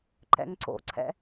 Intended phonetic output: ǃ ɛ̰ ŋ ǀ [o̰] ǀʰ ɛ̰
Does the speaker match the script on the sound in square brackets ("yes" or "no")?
yes